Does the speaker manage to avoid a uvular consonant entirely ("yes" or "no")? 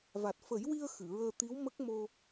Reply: yes